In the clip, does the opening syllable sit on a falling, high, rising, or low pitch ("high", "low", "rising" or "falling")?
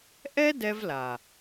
high